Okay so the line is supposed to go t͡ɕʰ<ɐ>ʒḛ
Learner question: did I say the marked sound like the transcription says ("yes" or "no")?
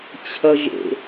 yes